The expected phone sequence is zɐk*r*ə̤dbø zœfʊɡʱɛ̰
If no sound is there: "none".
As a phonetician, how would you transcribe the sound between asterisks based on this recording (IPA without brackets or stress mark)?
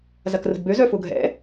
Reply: r